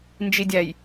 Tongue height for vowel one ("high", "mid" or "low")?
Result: high